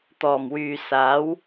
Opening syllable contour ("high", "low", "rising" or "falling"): low